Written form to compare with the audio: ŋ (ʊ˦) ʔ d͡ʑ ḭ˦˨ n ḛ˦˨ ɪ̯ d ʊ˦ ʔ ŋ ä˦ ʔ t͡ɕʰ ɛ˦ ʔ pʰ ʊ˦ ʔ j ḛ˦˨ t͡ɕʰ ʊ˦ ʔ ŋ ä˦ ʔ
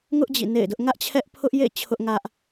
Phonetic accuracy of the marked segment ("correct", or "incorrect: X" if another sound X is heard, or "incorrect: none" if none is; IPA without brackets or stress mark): correct